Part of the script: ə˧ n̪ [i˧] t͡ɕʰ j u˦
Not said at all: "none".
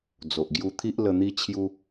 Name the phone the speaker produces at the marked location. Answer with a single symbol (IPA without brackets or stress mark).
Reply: i˦